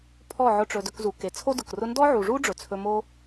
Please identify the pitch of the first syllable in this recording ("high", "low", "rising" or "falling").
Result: falling